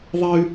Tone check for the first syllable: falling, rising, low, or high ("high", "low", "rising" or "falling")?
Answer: high